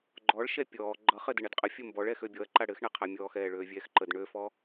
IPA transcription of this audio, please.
ɡ͡ǃ ɔ ɭ ʃ ɛ pʲ ɔː ɡ͡ǃ ʌ χ ɘ d ɘ ɳ ɛ d qʼ ə fʲ ə m b ɔ ɭ ɛː x ø bʲ ɔ ɐ̯ ǃ a ɽ ɘ x ɳ ɛ qʰ a mʲ ɔː x ɛː ɭ øː vʲ ɛː x ǃ ə d ɳ ø f ɔ

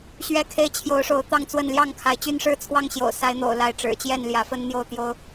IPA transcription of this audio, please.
ɕ ɥ ɛ˦ kʰ e˦ ɪ̯ t͡ɕʰ j o˨˦ ʊ̯ ʂ o˨˦ ʊ̯ t̪ ɑ˥˨ ŋ t͡s w ə˥˨ n l j ɑ˥˨ ŋ kʰ a˨˦ ɪ̯ t͡ɕ y˦ n ʂ ɻ̩˥˨ t͡sʰ w ɑ˥˨ ŋ ɕ j o̰˨˩ ʊ̯ s a˨˦ ɪ̯ n̪ o̰˨˩ ʊ̯ l a˨˦ ɪ̯ ʈ͡ʂ ɻ̩˨˩ t͡ɕ j ɛ˥˨ n l j ä˨˦ f ə˦ n n̪ j o˥˨ ʊ̯ t̪ j o˦ ʊ̯

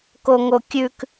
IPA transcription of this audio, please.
k o ŋ o kʲ ʉ k

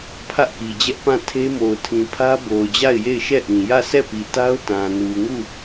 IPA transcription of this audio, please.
pʰ ä˦ ʔ k i˨ d͡ʑ ɛ˦ ʔ p ã˦˨ tʰ e˦ m o˨ ʊ̯ tʰ ĩ˨ pʰ ä˦ b o˨ ʊ̯ d͡ʑ a˦˨ ɪ̯ j e˦˨ ɪ̯ ʃ ɛ˦˨ ʔ ĩ˨ j ä˦˨ s ɛ˦˨ p i˨ t a˦ ʊ̯ t ã˨ n u˨ ŋ u˦˨

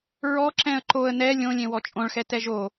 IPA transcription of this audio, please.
ɹ ɔ ǁ ɛ̃ ə̯ ǃ o ə̯ n ɛ lʲ õ lʲ ẽ w ɔ t͡ʃʼ õ ɭ x ɛ t ɛ ʒ o

